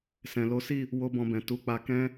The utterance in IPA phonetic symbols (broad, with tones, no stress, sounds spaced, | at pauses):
s ɛ̃˨ l o˨˦ s i˦˨ | w o˦ b ɔ̃˧ b ɛ̃˨ t u˨˦ k͡p a˧ k ɛ̃˦